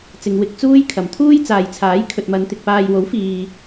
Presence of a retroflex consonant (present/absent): absent